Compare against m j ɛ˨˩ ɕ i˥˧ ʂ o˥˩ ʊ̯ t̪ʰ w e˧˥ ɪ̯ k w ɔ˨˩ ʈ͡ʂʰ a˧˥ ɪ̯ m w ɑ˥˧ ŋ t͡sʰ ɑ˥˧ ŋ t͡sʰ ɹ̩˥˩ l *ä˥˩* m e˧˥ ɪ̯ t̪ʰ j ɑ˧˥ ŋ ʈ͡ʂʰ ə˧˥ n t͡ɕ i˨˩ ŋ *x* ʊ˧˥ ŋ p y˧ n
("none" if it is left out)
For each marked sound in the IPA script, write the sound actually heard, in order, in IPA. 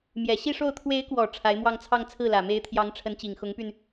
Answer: ä˨˩, x

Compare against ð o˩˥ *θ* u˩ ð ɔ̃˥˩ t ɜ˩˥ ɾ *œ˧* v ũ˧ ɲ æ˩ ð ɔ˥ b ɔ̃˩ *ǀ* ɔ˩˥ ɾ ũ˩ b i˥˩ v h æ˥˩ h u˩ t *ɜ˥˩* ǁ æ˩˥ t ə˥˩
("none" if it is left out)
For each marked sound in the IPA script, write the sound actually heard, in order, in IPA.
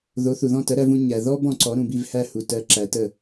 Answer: θ, æ˧, ǀ, ɜ˩˥

